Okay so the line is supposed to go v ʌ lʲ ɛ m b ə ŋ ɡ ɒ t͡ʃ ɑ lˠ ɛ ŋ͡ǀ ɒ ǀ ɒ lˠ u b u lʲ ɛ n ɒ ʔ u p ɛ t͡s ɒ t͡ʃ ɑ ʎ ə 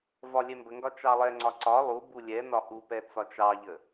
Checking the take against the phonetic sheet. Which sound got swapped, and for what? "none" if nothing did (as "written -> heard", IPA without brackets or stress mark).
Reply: ʌ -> ɒ